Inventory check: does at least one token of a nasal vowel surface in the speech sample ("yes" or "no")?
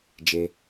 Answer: no